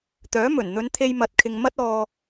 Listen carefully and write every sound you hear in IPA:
t̪œː˨˥mɵ˨˩n n̪ɵ˨˧nt̪ʰe˧jmɐ˨˥t̚kʰɪ˨ŋ mɐ˥t̚ ɔː˧

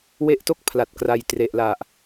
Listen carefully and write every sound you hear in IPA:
we˦˥ʔto˥˩k̚ pʰla˨˩t̚kra˧j tre˨˩ʔla˨˩ʔ

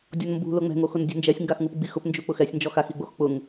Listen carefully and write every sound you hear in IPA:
dʲɔnmbṳ loŋ͡mɛ̤ŋoxʊn dʲṳnd͡ʒɛsʲŋɡaxŋup ɡ͡bixʊpnd͡ʒu k͡pʊxɛsʲ nd͡ʒɔxaxiɡ͡box k͡pʊŋ

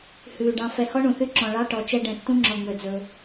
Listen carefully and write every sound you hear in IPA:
hʉː˨ ɖɑ̃˨ fɛ˨hɔ˦ ɳũ˨θy˦ ǁɔ̃˨ ɭɑ˦ʈɔ˨ t͡ʃɛ˦ ɖɛ̃˨tːũ˦ŋ͡ǁɔ˨ŋ͡mø˨ d͡zɵ˦

